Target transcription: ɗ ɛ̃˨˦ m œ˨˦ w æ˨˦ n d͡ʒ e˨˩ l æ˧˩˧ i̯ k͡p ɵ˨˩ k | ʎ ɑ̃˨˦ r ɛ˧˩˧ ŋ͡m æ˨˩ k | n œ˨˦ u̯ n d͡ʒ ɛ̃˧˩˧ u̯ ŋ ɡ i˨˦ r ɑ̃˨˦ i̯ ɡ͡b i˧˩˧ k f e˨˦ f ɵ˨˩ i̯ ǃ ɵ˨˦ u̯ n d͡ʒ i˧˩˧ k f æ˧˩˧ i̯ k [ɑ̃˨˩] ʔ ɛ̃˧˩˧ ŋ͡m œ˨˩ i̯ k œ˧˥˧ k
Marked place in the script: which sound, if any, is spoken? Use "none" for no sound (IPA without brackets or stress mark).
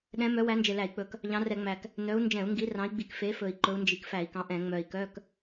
ɑ̃˨˦